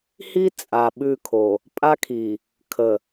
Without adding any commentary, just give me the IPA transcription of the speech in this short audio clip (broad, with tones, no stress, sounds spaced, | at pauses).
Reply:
h i˦ t͡sʼ a˨ ɓ ʉ˦˨ kʰ o˨ | pʼ a˦ kʰ i˨ | kʰ ə˨